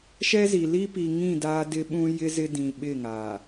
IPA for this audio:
ʃ ɛ˦ z i˨ l i˦ p i˨ ŋ ĩ˦˨ d aː˦ d ɪ˦ ɓ ũ˦ j ɪ˦ z ɪ˦ d ĩ˨ ɓ ɪ˦˨ ŋ a˨

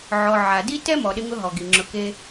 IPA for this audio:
ʕ ɔ˨ ʕ a˨ d i˥ t ɛ˥ m ɔ˨ ɗ ɪ˦ ŋ ʊ˦ ɦ ɔ˩ ɡ i˩ ŋ͡ǁ ʊ˨ k e˦

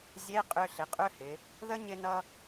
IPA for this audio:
zʲ e˧˥˧ qʼ ʏ˧ ɬ ɪ˩˧ qʼ ʏ˧˥˧ h ɪ˩˧ | ð ə˦˥ ɲ ɪ˧ n ʌ˧

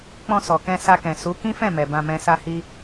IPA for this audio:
k͡p ɔ̃˧ s ɔ˨ k ɛ̃˧ s a˧ k ɛ̃˨ s u˨˦ k ĩ˦ f ɛ̃˦˨ m ɛ˨ b ã˧ m ɛ̃˧ s a˦ h i˦

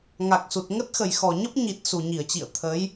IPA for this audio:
ŋ a˨˩ k̚ s u˨˩ t̚ ŋ ə˦˥ t̚ x ə˨˩ j x ɔ˨˩ ɲ ə˦˥ p̚ ɲ i˨˩ t̚ s u˨˩ ɲ i˧˩ ə̯ t͡ɕ ḭ˧˨ ə̯ t̪ʰ ə˨˦ j

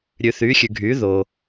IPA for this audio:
ɾʲ ʉ˨ θ yː˨˦ xʲ ʉ˨ ɡʱ yː˨˦ ð o˨

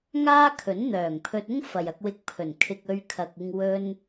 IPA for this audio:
ŋ aː˥ kʰ ɵ˨˥ n n̪ œː˨˩ ŋ pʰ ɵ˧ t̚ ʊ˥ ŋ f ɐ˨ j ɐ˧ k̚ w ɪ˧ k̚ pʰ ɵ˨˩ n kʰ ɪ˨ k̚ ɵ˧ ɥ kʰ ɐ˨ k̚ ɪ˧ ŋ w ɵ˧ n

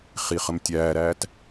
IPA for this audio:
χ i χ ə m tʲ æː ɾ æː t

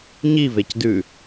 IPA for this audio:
ɲ i v e c d ʉ

